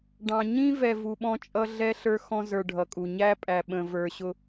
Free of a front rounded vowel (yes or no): yes